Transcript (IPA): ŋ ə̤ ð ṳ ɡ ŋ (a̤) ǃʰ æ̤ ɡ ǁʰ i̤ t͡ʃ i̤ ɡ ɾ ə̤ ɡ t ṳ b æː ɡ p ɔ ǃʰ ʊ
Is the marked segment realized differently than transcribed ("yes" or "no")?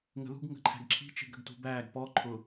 yes